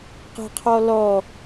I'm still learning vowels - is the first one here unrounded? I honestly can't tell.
yes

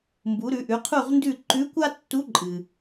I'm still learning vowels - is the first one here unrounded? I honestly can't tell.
no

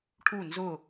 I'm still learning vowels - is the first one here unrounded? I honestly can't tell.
no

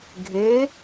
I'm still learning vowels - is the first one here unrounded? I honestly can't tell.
yes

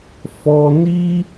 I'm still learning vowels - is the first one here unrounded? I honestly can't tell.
no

